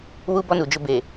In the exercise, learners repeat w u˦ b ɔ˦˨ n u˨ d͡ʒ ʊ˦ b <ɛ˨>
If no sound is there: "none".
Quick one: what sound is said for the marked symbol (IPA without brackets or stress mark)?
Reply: e˨